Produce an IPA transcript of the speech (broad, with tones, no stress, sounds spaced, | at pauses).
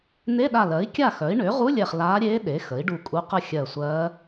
n̪ e˧˥˧ ɗ a˧˩ l ɜ˩˥ i̯ kʲ a˥˨ x œ˩˥ i̯ ɳ ʏː˩˥ ʁ u˧˥˧ lʲ ɛ˧˩ χ l aː˧˥ ɾʲ eː˧˥ ɗ e˩˥ x ə˩˥ i̯ ɖ u˧˩ kʼ u˧˥ q ə˥˨ xʲ ɜ˧˩ sʷ ɜː˧˥